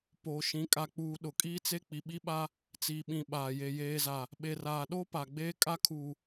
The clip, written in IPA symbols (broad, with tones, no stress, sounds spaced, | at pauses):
p oː˨ ʃ ĩ˨˦ kʼ a˨ k͡p uː˨ ɗ ʊ˨ kʼ iː˦ t͡s e˦ k͡p i˨ ɓ i˦ ɓ a˦ | t͡s iː˨ ɓ ĩ˨ ɓ aː˨ j e˨ j eː˨ z a˨ | ɓ e˨ r aː˨ ɗ o˦ p a˨ ɡ͡b eː˦ kʼ a˦ kʰ uː˨